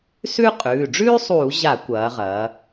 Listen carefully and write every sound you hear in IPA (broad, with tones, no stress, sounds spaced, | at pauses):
s ʉ˥ qʼ ʉː˩˧˩ ɖ͡ʐ ʉː˥ sˤ uː˧˩˧ ʑ a˧˩˧ kʷ ɐː˩˧ ʁ ɐː˩˧